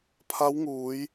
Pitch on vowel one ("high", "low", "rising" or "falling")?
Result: rising